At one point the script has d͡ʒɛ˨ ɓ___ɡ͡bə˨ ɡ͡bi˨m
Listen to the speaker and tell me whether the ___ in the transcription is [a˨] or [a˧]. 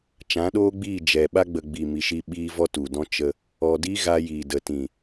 a˧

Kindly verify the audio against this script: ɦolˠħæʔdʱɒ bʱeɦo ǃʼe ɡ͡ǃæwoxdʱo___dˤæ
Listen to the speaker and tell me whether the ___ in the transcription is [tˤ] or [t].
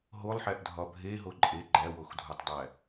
tˤ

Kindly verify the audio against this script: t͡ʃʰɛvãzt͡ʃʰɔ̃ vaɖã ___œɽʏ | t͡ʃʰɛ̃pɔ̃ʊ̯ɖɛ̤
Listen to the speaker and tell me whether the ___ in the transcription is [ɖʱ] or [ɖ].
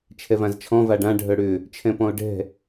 ɖʱ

